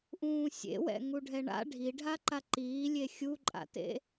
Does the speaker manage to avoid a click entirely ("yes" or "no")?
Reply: no